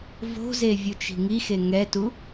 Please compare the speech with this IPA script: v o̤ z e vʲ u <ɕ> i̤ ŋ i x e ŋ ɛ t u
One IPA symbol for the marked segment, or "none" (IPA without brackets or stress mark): t͡ʃ